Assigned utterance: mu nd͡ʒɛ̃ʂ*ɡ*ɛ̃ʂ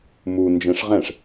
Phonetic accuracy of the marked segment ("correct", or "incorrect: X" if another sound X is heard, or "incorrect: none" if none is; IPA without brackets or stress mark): incorrect: ʁ